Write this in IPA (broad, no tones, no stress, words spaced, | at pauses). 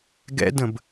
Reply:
ɡɛ̰də̃b